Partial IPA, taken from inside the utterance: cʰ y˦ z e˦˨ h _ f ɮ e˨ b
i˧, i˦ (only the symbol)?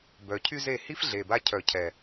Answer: i˦